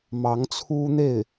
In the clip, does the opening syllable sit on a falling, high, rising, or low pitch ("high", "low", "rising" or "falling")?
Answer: rising